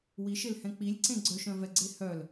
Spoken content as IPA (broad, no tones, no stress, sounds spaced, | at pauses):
w i ʃ e l h ɛ̃ k͡p i lʲ ǀ ẽ ɡ͡ǀ œ ʃ œ̃ v ɛ ɡ͡ǀ e h œ l